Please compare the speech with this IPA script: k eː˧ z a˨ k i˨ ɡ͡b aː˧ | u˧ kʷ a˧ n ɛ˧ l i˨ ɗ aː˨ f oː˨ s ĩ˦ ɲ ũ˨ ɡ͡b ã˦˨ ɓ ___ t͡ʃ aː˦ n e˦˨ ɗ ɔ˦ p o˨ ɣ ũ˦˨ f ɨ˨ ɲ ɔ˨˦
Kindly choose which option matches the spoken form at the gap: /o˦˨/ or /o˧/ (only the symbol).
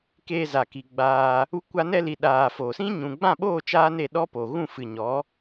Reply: o˦˨